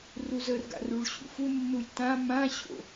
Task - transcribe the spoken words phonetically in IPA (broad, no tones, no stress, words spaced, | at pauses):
ruzərɡa̰ ruɭɕṵfunːulʲ tã mãɕo̰